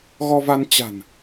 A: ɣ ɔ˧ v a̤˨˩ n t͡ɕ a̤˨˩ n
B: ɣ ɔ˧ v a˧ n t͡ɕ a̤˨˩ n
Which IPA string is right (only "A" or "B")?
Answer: B